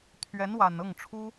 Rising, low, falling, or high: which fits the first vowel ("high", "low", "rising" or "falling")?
rising